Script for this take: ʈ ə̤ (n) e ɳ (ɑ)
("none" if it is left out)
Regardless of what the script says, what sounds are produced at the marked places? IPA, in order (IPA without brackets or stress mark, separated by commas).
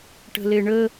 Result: l, ə